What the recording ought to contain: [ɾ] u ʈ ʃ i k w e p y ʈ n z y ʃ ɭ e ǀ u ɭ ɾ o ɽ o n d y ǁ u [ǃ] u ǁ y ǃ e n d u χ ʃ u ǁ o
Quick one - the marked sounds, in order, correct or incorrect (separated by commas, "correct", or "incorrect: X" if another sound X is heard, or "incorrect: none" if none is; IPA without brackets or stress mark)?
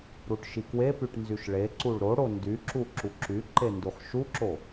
correct, incorrect: ǁ